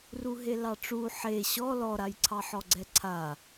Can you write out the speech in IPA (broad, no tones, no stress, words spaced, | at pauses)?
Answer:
ruɦelɑʈ͡ʂu ħe ɕɔ lɔɾajǀʰɑ ħɔɡ͡ǀɛǀʰa